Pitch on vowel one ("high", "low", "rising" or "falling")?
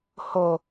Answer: low